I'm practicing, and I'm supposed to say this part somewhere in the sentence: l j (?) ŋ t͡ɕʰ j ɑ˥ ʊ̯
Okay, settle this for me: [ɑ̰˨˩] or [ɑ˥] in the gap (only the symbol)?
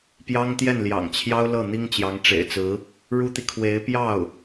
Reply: ɑ̰˨˩